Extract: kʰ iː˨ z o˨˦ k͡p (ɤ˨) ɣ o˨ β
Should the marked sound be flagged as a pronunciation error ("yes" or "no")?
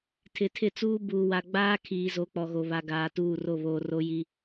yes